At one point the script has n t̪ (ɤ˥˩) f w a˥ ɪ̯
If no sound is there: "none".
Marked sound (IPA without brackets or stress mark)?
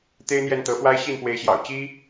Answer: ɤ˧˥